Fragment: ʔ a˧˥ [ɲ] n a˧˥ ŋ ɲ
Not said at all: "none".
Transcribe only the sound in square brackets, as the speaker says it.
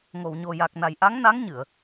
ŋ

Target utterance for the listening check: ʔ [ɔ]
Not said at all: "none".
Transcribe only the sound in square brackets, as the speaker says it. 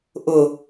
ʊ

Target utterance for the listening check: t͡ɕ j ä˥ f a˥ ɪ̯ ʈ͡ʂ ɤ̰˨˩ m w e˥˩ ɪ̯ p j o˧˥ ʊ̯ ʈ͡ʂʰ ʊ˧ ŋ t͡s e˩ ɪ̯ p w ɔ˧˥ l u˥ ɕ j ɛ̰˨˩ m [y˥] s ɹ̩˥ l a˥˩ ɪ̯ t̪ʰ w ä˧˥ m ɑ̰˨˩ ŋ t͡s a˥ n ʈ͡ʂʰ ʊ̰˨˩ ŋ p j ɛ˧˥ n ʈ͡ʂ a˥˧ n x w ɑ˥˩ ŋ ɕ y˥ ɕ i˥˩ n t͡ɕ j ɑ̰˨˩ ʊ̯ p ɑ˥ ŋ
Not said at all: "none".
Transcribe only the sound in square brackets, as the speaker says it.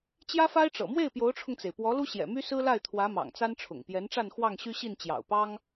y˥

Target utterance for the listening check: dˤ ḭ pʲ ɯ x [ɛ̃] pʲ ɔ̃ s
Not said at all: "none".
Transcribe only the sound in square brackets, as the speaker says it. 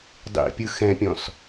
ɛ̃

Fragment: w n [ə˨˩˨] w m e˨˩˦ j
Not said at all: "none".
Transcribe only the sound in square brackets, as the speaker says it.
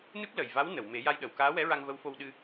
ə˨˩˨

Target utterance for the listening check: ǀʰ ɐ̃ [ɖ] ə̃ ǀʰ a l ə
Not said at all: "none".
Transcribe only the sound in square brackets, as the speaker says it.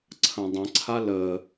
dˤ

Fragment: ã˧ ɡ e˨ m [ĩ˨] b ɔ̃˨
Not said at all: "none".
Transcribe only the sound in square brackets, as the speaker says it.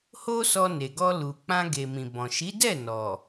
ĩ˨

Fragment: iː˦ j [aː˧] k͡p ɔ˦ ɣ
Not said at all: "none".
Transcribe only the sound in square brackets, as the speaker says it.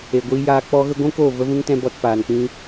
aː˧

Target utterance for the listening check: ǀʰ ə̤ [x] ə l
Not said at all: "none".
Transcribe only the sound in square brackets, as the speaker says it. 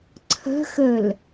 x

